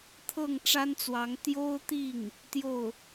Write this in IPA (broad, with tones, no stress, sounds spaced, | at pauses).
t̪ʰ ɤ˥˩ ŋ ʈ͡ʂ a˥ n t͡s w ɑ˧˥ ŋ t̪ j o˥ ʊ̯ t̪ i˥˩ ŋ | t̪ j o˥˩ ʊ̯